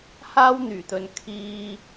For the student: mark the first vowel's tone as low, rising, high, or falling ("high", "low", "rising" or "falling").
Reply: high